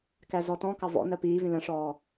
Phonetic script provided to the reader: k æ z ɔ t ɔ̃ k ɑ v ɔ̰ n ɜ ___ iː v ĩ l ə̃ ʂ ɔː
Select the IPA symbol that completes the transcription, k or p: p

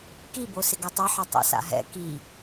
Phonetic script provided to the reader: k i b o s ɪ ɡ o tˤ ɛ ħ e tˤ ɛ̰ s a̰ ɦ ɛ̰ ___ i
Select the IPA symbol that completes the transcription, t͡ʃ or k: k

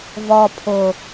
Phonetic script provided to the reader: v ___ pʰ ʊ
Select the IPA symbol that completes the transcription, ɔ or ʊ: ɔ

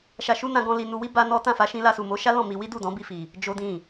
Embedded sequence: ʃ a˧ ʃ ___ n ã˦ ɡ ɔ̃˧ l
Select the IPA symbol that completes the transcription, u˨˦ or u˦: u˦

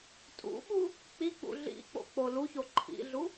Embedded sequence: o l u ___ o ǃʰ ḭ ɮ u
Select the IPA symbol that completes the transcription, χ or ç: ç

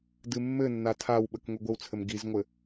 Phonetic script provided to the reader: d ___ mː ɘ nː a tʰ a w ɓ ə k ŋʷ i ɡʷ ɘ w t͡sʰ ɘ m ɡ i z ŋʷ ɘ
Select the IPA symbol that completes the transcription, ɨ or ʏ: ɨ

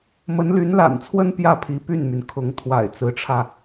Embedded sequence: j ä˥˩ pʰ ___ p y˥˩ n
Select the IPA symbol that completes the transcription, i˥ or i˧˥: i˧˥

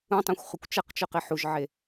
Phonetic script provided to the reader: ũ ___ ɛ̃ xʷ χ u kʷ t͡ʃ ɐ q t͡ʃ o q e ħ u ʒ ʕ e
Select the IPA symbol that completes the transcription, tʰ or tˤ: tˤ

